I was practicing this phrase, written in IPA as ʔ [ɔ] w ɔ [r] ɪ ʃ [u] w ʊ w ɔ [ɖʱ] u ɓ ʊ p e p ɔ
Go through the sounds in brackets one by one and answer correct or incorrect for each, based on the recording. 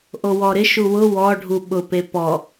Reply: incorrect: o, incorrect: ɾ, correct, correct

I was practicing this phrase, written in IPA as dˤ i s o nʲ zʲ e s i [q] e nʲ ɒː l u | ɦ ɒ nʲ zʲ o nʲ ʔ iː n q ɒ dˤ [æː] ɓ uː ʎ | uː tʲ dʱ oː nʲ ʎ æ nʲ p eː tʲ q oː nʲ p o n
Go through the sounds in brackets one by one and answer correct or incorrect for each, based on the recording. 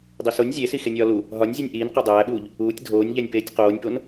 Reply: incorrect: x, correct

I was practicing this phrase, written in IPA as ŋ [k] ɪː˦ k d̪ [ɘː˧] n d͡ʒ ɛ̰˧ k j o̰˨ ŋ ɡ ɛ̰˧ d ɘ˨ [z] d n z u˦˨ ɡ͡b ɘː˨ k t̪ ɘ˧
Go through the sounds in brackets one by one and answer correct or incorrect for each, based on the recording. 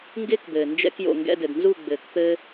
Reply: incorrect: ɡ, incorrect: ɘː˨, incorrect: none

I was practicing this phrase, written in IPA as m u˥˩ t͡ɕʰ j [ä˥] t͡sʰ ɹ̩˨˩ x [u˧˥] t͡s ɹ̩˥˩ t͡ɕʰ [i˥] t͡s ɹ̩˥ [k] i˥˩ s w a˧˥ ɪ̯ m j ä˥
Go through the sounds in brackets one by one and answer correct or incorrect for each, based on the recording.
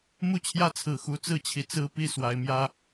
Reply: correct, correct, incorrect: i˧˥, incorrect: p

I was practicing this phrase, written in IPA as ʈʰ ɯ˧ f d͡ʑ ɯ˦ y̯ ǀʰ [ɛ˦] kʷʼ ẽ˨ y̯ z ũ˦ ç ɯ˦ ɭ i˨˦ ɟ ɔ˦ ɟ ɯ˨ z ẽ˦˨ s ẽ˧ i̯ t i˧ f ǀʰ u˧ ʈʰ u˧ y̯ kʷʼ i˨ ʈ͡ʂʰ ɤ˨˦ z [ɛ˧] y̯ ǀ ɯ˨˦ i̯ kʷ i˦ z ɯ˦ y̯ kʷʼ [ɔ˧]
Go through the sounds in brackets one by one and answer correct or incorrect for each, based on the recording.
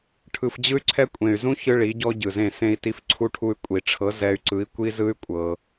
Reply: correct, correct, incorrect: ɤ˧

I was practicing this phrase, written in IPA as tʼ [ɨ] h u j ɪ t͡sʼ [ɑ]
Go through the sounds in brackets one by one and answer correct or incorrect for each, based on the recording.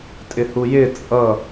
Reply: incorrect: ɪ, incorrect: ʌ

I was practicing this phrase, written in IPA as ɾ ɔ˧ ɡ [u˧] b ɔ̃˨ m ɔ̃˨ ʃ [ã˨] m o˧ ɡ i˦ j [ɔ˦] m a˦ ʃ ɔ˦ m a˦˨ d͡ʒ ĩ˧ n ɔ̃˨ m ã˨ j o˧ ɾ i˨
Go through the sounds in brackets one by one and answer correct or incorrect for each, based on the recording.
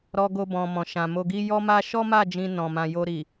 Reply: incorrect: o˧, correct, correct

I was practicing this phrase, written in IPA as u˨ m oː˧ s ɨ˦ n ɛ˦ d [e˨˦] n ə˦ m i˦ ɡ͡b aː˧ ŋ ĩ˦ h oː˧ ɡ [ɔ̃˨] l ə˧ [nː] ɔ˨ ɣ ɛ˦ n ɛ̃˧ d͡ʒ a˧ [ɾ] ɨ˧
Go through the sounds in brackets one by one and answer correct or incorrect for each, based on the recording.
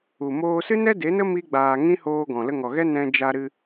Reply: correct, correct, incorrect: ŋ, correct

